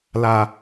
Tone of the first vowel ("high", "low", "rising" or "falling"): low